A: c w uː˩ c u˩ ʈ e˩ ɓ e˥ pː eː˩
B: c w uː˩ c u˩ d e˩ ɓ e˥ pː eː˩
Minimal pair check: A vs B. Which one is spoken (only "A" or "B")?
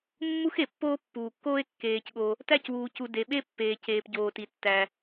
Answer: B